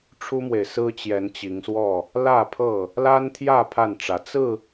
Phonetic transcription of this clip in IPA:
ʈ͡ʂʰ u˦ m w e˨ ɪ̯ s ɹ̩˦ t͡ɕ j ɛ˨˦ n t͡ɕ i˨˦ ŋ s w ɔ˥˨ | l ä˥˨ pʰ ɤ˥˨ | l a˦ n t̪ʰ j ä˥˨ pʰ a˥˨ n ʈ͡ʂ ä˨˦ t͡s ɹ̩˥˨

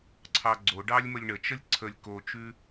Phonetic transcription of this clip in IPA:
ǀʰ ɑ ɡ͡ǀ o ɖ ɑ lʲ m ə lʲ ɳ ə t͡ʃ ə lʲ ǀʰ ə lʲ k o t͡ʃ ʉ

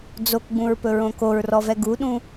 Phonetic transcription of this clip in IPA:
d͡z o k ɡ͡b ũ ɹ p ɵ ɹ õ k o ɹ r ɔ v ɛ ɡ u ɗ ũ

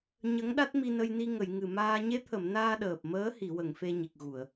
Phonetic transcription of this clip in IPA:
ɲ ə˧˥ ŋ ɗ a˦˥ t̚ m i˧ n ə˧ j n i˧ ŋ ə˨˩˨ j ŋ ɨ˨˩ m aː˧ ɲ e˧˥ t̪ʰ ə˨˩˨ m n aː˧ ɗ əː˨˩ p̚ m əː˧˥ h i˨˩˨ w ə˨˩˨ ŋ f e˧ ɲ i˨˩ k̚ ɣ u˨˩˨ ə̯

